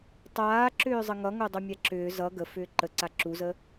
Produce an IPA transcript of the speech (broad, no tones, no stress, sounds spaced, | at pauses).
tˤ aː ǁ ʏː zˤ ə ŋ ʌ ŋ o dˤ o mʲ a ǁ ʏː z ʌ ɡ ə f ʏː ǃ ə ǀ a ǁ u z ə